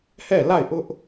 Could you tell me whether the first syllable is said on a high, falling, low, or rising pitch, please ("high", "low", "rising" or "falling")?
falling